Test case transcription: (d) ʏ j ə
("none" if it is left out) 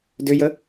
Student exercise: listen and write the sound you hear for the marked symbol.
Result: d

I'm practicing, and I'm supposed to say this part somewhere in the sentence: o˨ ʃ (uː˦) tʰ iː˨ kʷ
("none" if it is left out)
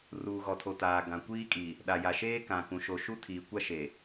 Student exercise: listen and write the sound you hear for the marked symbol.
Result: u˦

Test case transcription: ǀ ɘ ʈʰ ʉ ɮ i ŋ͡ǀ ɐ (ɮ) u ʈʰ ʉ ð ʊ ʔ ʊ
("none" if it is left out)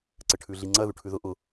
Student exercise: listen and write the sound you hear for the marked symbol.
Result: ð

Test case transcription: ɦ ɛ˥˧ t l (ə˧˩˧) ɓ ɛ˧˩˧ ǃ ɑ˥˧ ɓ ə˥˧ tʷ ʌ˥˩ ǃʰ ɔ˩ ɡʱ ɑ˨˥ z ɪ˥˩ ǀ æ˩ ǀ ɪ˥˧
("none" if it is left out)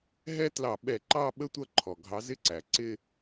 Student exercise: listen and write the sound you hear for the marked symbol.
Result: ɑ˧˩˧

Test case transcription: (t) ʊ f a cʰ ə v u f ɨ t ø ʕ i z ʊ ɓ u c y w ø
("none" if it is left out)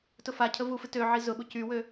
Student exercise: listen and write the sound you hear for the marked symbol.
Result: t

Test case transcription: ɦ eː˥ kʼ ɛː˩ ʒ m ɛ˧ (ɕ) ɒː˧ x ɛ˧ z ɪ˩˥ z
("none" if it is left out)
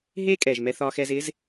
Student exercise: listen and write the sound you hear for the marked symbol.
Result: θ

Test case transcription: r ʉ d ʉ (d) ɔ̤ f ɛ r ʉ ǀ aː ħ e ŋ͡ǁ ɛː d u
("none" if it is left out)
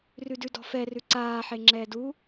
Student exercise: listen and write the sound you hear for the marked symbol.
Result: d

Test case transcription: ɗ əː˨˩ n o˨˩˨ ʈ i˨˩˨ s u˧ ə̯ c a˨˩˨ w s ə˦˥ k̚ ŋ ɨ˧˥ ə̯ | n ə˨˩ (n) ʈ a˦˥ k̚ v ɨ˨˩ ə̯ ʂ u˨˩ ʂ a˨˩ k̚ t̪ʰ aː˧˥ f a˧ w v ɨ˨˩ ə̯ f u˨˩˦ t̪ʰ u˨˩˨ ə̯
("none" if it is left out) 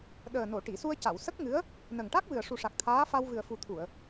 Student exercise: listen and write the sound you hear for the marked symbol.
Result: ŋ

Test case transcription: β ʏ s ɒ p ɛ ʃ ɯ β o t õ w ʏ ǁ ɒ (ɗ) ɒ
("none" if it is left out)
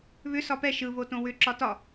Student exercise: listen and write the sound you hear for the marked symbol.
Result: t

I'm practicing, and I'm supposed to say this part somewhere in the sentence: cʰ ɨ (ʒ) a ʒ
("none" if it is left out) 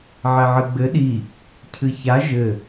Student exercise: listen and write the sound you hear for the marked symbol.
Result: ç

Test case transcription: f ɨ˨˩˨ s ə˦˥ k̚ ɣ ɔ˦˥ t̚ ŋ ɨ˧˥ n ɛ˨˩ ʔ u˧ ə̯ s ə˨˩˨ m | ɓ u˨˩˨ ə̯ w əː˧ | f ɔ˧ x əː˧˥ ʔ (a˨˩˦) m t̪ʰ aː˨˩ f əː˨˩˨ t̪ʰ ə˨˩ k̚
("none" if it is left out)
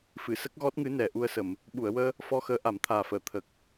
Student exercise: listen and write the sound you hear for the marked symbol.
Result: a˨˩˦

